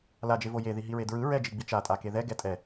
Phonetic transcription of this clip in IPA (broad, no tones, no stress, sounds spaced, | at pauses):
l a d͡ʒ e v o j e ð i ɦ i ɹ e d ɹ ɯ ɹ ɛ d͡ʒ i ɡ͡b i t͡ʃ a tʼ a k e ð ɛ ɡ ɛ tʼ ɛ